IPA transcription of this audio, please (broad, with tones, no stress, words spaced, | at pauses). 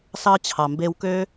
sɑ˧ t͡ɕʰɑ˨mbe˧wkø˦